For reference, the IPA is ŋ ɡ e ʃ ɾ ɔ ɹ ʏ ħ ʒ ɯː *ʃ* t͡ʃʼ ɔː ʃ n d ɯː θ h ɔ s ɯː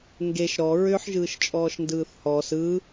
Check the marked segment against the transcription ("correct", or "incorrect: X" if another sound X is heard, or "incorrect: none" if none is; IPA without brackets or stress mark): correct